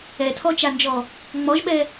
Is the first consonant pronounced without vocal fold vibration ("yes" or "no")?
yes